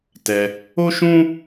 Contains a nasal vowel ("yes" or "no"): yes